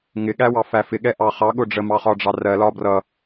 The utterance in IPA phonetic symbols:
ŋ ɪ ɠ æ w ɑ f æ f ɪ ɠ ɛ ʔ ɑ χ ɑ ɠ ʊ ɖ͡ʐ ə m ɑ χ ɒ ɖ͡ʐ ɑ r ɜ l ɒ b r ʌ

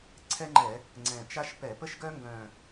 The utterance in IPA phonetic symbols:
ǀʰ ɛ˥ ŋ͡ǃ ɛ˧˩˧ | ŋ͡ǀ ɛ̃˨˩ t͡ʃ a˥ ʃ p ɛ˧˩˧ p ə˥ ʃ ɡ œ˥ ŋ ɡ œ̃˨˩

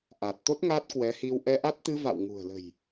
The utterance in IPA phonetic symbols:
ʔ a˨˩ t̚ t̪ o˦˥ t̚ ŋ a˦˥ t̚ k w ɛ˨˦ h i˧ w ʔ ɛ˧ ʔ a˦˥ t̚ t̪ ɨ˧ v a̰˧˨ w ŋ ṳ˨˩ ə̯ l ə̤˨˩ j

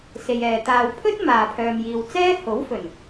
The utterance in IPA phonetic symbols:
s e˨ j ɛː˨ t̪ aː˨ w pʰ ɵ˥ t̚ m aː˨ pʰ œː˨ m j iː˨ w t͡s ɛː˥ h o˨˥ w f ɵ˨˩ n

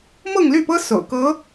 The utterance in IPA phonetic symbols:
m ɤ˥˧ ŋ l y˥˩ p ɤ˥ s o̰˨˩ ʊ̯ k ɤ˧˥

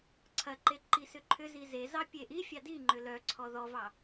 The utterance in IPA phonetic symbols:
ǀʰ ɐ ǃ e ǃ i s ʏ ǃʰ ʏ z i z e z ɑ pʲ e ʔ i fʲ ɑ d i ŋ͡ǃ ʏ l œ ǀʰ ɔ ð ɔ v ɑ

